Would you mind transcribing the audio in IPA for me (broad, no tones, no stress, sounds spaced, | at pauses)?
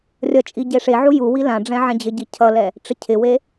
rʲ ʌ t͡ʃʼ i ɟ e ʂ e ʕ u j u w i l ã ɖ͡ʐ ɛ̃ ʕ ɛ̃ d͡ʑ ɪ ɟ i cʰ ʌ l ɛ | ʈ͡ʂ ɪ cʰ ɪ w e